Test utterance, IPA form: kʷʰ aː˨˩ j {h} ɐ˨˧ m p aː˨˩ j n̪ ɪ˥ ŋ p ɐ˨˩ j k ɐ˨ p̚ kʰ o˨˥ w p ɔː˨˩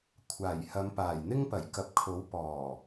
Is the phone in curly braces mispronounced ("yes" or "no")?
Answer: no